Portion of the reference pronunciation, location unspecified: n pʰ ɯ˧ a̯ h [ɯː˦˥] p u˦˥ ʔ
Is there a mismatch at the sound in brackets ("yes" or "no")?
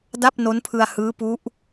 no